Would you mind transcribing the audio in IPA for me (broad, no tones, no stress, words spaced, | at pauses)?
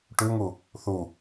ʈʉŋu | θu